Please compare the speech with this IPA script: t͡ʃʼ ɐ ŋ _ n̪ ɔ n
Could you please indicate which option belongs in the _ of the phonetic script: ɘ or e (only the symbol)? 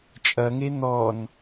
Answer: e